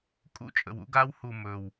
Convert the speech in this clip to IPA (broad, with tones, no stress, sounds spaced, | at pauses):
kʼ ṵ˦˥ t͡ʃʼ ə̰˨˩ w ṵ˦˥ ɡ aː˦˥ w h u˨˩ m ɵː˨˩ w